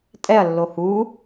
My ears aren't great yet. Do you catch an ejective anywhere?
yes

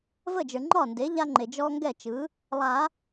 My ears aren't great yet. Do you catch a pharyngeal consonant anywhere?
no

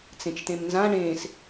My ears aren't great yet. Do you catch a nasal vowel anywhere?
yes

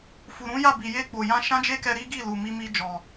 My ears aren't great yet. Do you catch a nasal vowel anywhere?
yes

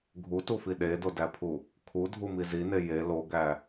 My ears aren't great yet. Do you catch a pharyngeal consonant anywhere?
no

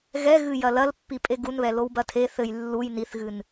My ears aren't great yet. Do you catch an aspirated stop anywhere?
yes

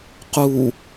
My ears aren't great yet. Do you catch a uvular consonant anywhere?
yes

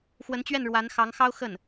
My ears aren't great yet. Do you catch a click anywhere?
no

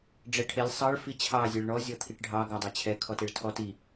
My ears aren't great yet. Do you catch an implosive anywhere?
no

